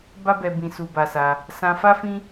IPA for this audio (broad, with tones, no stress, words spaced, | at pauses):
ba˦bɛ˧ bĩ˧su˧ba˧sa˧ | sã˧fa˦fĩ˦